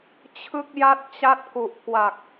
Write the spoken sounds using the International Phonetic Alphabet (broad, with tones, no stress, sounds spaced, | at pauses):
t͡ɕʰ ɯ˥˩ k̚ j a˥˩ t̚ t͡ɕ a˥˩ t̚ k u˨˩ ʔ k w a˨˩ k̚